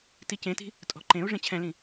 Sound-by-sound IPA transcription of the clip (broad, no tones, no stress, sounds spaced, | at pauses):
t i c ẽ t i̤ | tʼ ɔ̤ ǃ ẽ u̯ ʐ ẽ t͡ɕʰ ɛ̃ l ĩ